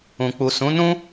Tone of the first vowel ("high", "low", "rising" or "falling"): low